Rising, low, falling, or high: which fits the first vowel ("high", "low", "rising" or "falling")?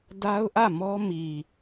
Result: high